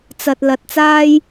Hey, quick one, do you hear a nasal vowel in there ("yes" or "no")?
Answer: no